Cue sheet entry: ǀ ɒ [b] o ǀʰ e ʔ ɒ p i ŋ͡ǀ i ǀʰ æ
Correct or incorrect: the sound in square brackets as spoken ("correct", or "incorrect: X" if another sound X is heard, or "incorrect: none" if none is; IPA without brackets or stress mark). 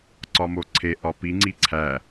incorrect: m